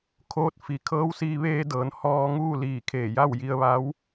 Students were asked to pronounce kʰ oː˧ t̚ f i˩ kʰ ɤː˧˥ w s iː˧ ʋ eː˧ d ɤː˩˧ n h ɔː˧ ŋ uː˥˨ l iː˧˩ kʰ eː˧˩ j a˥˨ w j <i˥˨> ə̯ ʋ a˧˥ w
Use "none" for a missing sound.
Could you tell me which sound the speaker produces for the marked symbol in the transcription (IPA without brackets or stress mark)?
i˧